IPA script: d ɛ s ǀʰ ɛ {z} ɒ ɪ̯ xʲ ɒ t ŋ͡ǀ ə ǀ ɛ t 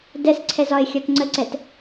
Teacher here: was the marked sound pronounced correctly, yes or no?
yes